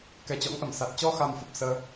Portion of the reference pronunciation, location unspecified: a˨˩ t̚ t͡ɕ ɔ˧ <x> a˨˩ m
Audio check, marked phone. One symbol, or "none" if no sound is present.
x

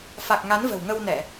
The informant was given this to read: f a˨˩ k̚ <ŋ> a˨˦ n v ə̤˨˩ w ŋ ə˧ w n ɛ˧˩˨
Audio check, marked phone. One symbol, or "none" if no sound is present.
ŋ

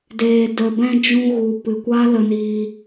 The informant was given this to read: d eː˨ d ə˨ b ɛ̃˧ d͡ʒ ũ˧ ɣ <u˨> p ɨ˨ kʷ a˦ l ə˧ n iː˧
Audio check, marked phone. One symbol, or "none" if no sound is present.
u˨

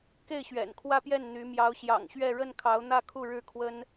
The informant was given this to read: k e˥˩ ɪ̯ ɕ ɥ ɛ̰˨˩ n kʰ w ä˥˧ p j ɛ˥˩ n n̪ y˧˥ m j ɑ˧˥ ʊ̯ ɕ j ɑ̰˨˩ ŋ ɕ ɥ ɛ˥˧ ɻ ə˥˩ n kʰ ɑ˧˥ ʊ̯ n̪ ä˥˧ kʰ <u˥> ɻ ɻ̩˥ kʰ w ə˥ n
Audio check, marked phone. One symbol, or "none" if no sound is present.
u˥˩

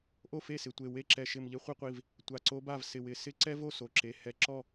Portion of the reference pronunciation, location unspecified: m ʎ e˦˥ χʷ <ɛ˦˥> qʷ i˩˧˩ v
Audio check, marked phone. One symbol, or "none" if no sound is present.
ɛ˦˥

